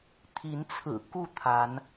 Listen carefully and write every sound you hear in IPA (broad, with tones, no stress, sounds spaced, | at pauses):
t̪ʰ i˨˦ n t͡sʰ ɹ̩˨˩ k u˥˨ t̪ʰ a˨˦ n